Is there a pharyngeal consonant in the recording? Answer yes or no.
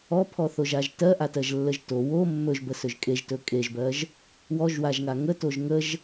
no